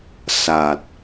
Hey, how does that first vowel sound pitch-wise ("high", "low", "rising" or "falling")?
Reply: low